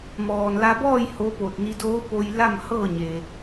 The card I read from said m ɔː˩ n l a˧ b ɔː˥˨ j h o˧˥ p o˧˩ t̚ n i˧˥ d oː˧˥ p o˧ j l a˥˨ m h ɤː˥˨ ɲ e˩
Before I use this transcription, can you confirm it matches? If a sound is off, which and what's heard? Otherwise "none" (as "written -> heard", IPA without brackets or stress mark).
none